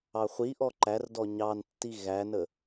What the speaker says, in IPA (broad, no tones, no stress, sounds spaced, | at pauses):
ɑ χʷ i ʔ ɔ ǃ æ r d ɔ ɲ ɑ n tː i ɣ æ n ə